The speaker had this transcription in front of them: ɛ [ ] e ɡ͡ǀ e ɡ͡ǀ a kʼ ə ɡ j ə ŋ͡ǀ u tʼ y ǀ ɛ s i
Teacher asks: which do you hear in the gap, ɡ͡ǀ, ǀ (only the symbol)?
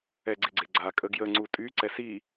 ɡ͡ǀ